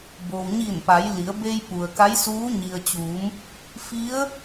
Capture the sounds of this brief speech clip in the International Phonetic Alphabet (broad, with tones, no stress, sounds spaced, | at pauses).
b oː˩ w ɲ iː˧˩ n p a˩˧ j l i˩˧ ə̯ b e˧ j p u˩ ə̯ k a˧˥ j s uː˧˥ ɲ i˩ ə̯ t͡ɕ uː˩˧ m | f i˧˥ ə̯